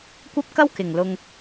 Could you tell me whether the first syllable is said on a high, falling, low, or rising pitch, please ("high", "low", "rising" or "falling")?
high